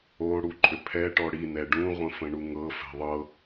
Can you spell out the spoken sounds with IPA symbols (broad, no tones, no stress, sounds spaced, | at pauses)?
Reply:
o ɽ u ǃʼ ʏ pʰ ɛ ʈ ɔ ɽ i n ɛ ɖ ũ ʁʷ ə̃ f ə̃ ɳ u ŋ ɤ f ɛ̤ ðˤ ɤ